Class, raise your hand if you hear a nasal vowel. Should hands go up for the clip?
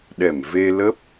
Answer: no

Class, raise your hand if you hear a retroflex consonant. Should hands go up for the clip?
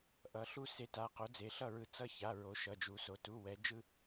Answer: no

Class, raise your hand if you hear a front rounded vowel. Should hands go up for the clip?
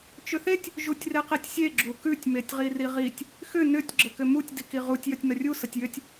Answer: yes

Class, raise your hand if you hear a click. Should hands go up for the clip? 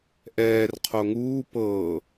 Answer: no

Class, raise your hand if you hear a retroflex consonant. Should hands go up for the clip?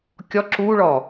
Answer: yes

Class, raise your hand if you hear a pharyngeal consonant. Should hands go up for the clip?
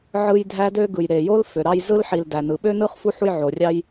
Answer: yes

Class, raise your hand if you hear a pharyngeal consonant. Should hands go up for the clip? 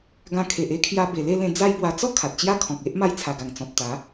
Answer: no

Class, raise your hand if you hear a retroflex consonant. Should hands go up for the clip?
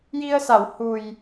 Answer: no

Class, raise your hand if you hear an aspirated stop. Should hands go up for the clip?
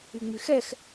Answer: no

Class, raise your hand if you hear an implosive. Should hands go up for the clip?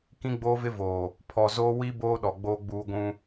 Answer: yes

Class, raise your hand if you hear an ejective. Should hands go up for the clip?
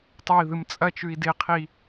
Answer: yes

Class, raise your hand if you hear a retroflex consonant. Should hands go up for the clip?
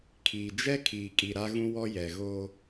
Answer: no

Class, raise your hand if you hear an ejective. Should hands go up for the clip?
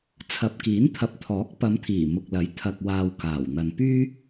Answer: no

